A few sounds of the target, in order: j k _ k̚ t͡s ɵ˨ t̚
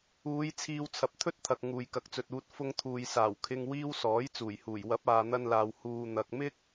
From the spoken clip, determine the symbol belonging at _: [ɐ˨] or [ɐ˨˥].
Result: ɐ˨˥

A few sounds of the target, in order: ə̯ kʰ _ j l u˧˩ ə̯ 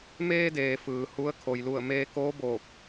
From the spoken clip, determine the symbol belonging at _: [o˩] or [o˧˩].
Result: o˩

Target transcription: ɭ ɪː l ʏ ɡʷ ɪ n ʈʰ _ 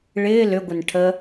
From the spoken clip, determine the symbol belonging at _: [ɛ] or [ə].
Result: ə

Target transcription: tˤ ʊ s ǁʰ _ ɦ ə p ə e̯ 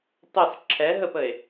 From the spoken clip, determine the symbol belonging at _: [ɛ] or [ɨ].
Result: ɛ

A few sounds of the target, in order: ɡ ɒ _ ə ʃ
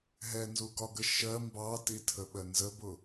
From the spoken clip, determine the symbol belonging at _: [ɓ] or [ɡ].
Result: ɡ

